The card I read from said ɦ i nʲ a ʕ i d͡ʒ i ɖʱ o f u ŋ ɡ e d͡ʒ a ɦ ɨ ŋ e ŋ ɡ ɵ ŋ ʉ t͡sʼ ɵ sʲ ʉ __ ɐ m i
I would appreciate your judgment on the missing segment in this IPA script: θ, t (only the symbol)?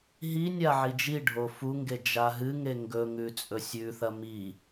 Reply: θ